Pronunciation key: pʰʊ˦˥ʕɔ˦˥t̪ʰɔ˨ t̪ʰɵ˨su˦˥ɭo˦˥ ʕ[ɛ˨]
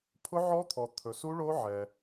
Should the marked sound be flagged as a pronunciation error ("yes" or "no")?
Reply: no